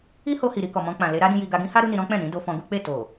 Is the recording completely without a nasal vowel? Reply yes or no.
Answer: no